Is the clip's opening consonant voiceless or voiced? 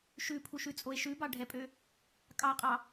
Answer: voiceless